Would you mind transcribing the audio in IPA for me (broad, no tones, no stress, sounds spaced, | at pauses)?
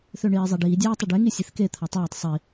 θ ø ɳ iː zˤ a ɖ iː dʲ aː tˤ ɨ ɖ e ŋ i sʲ e θ k e t̪ʰ a tˤ aː tˤ sˤ i